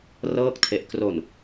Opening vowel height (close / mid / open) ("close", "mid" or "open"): mid